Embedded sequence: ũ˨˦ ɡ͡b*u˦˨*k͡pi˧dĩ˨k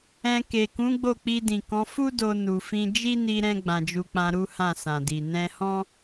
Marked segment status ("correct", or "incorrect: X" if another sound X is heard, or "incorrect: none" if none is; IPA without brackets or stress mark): incorrect: o˦˨